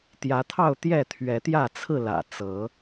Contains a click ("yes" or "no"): no